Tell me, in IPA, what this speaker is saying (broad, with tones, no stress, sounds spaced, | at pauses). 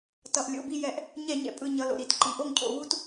t ʌ˩ ʔ lʲ o̰˩˧˩ b i˥˩ j ɛ˧˩˧ ʔ | ɲ ɛ˧˩˧ ɲ ɛ̰˩ pʼ ɯ˧˩ ɲ ʌ˩˧˩ l o̰˩ ɾ i˧˩˧ t ǃ i˩ ʔ o˥˩ ŋ cʰ o̰˧˩˧ β u˦ t